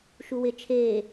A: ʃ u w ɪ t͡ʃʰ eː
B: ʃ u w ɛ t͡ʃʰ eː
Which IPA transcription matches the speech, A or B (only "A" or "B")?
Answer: A